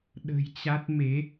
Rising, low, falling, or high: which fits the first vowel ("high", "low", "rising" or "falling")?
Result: low